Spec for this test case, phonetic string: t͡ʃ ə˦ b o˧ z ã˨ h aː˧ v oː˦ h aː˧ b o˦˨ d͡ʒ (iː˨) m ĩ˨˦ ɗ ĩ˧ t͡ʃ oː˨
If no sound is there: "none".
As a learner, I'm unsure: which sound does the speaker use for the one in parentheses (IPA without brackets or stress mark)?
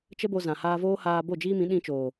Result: iː˦